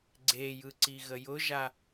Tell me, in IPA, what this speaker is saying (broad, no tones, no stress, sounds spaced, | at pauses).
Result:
ɡ͡ǀ e j ɯ ǀ i ɣ ə j ʊ ʒ a